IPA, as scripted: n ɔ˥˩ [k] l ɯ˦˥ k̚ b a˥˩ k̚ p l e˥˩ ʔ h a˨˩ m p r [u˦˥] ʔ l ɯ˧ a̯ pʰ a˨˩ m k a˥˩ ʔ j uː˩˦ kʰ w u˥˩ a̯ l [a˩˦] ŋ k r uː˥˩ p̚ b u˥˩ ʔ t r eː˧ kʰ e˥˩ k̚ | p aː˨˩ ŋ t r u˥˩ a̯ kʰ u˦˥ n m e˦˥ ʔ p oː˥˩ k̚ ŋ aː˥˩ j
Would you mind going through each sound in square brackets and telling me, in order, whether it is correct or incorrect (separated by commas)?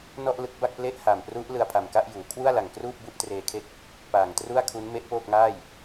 incorrect, correct, incorrect